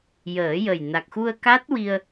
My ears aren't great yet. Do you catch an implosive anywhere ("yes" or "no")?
no